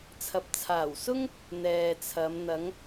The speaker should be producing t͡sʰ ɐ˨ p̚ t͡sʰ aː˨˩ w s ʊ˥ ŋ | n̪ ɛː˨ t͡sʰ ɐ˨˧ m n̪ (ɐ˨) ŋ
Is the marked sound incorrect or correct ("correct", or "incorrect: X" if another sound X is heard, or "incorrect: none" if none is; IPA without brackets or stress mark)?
incorrect: ɐ˨˧